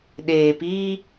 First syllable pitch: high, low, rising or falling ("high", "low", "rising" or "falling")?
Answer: low